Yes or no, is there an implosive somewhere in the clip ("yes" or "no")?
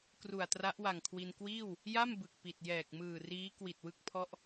no